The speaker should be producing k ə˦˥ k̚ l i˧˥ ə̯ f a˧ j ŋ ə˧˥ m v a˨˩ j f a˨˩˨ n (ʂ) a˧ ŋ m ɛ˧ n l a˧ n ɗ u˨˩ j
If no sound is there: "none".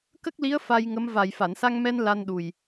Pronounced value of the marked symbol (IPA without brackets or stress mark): s